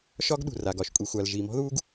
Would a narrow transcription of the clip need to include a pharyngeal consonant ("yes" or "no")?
no